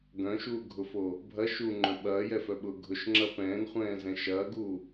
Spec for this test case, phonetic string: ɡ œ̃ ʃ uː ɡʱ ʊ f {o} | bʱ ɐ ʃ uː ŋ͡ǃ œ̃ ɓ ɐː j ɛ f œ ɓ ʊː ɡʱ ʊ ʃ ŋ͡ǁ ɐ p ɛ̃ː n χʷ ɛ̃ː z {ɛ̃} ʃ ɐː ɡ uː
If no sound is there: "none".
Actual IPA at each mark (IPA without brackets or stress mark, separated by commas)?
o, ɛ̃